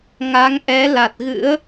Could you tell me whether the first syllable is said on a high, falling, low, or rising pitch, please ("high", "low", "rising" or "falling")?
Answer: rising